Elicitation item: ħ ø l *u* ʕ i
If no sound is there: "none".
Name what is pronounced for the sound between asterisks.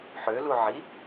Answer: u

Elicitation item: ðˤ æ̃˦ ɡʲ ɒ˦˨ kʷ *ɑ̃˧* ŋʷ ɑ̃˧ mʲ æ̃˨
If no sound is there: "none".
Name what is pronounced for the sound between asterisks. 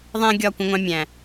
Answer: ə̃˧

